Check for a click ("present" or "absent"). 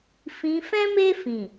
absent